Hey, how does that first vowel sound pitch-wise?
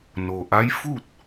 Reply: low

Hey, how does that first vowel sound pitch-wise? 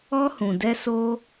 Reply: high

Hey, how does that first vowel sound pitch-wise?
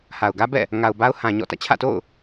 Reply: low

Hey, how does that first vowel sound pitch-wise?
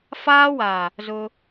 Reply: high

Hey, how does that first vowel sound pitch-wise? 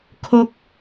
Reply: falling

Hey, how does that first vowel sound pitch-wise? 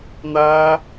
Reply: high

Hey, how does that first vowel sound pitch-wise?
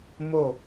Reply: falling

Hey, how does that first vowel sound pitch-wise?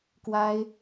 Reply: high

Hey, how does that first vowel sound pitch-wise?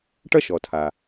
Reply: high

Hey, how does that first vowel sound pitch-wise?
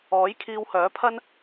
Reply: rising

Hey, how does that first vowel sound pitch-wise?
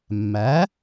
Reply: rising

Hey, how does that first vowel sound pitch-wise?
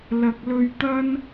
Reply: low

